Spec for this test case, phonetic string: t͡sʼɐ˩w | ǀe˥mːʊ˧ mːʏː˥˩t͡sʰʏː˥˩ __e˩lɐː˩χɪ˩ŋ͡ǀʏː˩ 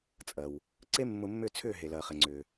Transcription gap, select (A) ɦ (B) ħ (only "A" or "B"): A